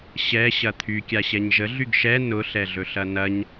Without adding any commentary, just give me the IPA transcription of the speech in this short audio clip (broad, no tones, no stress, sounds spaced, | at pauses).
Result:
ɕ ɛ ɕ ɐ t̪ʰ y kʲ a ɕ ɛ ɲ ʒ ə ɮ y ɡ ʃ ɛ n ʊ ɬ ɛ ɮ ɵ ɬ ɐ n ɐ ɲ